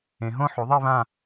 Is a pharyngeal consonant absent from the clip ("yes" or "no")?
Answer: no